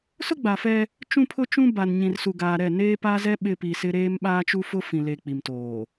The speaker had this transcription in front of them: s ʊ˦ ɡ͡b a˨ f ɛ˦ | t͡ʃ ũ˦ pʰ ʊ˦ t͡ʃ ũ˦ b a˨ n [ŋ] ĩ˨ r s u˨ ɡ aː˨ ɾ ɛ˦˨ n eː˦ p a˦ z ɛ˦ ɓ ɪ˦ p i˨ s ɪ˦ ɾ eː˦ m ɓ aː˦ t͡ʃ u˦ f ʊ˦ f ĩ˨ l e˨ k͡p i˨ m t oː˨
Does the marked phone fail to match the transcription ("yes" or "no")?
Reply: yes